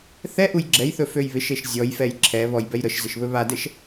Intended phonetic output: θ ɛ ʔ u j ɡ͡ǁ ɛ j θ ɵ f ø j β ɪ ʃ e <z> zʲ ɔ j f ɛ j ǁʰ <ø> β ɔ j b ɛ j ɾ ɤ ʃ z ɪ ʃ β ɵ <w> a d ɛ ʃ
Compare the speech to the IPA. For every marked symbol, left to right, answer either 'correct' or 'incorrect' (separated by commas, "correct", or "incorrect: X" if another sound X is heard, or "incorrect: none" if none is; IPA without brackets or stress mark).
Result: incorrect: ʃ, incorrect: ɛ, incorrect: β